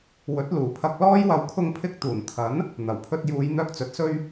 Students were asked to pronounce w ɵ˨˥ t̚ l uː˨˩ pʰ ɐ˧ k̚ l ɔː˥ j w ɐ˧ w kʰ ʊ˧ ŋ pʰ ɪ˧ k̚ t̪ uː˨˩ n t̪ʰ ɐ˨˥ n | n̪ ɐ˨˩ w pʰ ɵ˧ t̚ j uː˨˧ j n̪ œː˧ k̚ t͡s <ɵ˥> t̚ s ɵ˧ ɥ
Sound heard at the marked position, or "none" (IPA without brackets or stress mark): ɵ˨